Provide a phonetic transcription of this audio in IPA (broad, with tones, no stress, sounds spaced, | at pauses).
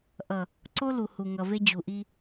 ʔ ʌ˨ | ǀ o˦ l u˨ h u˨ ŋ ʌ˨ v e˦ d͡ʑ u˨ ʔ i˦